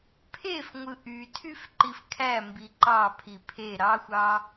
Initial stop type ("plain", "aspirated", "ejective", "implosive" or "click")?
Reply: aspirated